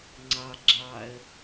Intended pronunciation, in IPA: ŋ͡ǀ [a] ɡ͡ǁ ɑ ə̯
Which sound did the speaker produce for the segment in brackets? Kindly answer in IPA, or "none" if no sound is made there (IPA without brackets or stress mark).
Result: ɑ